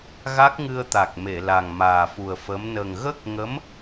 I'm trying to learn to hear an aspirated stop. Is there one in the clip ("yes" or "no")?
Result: no